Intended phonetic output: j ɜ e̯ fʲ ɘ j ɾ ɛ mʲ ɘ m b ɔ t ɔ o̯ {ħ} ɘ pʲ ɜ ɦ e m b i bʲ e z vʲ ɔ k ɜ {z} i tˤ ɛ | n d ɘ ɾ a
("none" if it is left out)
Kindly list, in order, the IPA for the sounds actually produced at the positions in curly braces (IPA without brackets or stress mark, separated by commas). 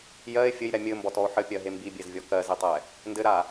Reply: ħ, z